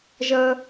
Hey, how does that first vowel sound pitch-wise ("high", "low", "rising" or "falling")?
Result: high